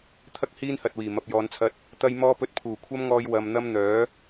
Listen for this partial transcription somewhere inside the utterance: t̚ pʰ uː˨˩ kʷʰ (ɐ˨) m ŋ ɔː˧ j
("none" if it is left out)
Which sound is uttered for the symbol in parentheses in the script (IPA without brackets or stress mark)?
ɐ˥